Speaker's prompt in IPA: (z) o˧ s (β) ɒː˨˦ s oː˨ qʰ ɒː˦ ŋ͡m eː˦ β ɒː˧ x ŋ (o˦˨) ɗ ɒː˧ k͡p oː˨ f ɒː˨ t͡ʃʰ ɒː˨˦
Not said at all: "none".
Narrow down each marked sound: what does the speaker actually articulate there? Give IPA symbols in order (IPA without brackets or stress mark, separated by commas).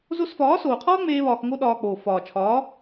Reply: z, f, o˦